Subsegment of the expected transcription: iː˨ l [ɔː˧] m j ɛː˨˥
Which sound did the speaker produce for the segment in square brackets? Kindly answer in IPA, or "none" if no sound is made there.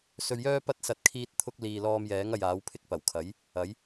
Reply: ɔː˧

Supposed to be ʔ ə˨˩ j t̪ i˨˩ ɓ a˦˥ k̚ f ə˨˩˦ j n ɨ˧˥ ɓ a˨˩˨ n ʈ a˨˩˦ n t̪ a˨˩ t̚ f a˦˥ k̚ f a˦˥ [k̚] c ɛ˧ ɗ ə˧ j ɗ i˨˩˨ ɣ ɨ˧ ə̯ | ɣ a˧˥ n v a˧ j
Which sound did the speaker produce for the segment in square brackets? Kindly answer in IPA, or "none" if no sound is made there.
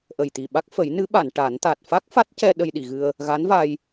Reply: t̚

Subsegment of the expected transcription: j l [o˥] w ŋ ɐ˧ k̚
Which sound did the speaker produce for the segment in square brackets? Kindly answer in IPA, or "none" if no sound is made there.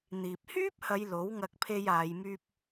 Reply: o˨˥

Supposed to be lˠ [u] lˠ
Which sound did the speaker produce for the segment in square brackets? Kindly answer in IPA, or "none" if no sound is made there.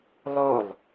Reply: o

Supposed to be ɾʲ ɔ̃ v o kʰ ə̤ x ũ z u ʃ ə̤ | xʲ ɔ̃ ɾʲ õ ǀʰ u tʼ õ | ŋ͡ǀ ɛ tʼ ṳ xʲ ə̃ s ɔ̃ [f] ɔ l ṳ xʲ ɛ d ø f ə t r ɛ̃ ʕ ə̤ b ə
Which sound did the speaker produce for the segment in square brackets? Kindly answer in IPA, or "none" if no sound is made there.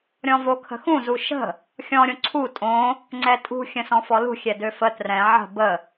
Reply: f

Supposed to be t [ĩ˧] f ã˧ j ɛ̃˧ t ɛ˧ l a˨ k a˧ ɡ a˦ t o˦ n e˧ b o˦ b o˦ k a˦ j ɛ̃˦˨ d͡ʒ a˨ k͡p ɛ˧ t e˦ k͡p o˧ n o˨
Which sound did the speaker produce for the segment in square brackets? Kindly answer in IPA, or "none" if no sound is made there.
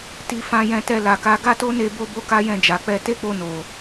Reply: i˧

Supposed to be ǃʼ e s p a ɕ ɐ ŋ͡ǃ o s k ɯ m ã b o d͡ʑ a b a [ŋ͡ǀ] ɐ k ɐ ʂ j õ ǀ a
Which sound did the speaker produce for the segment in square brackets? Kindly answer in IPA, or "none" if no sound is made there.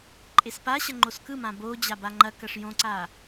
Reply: ŋ͡ǃ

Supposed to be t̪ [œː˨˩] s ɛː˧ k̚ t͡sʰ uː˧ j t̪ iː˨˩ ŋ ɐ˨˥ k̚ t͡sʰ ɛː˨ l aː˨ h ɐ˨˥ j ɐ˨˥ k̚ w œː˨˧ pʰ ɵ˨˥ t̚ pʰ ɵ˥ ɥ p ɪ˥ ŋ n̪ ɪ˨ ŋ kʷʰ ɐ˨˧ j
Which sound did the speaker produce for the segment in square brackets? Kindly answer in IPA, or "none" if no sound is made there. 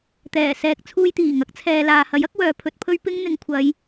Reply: ɛː˨˩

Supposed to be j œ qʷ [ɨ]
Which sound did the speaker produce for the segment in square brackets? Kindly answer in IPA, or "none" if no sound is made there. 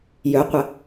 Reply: ə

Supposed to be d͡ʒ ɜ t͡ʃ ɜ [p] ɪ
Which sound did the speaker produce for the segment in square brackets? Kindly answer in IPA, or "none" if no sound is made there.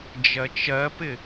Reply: p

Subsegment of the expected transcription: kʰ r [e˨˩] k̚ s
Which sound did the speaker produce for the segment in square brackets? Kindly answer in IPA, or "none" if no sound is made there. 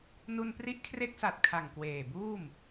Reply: e˦˥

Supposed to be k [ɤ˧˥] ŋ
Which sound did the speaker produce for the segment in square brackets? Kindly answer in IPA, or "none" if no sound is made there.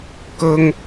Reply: ɤ˥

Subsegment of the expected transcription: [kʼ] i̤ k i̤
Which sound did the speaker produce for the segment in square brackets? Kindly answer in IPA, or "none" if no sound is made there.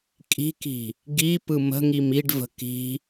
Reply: kʼ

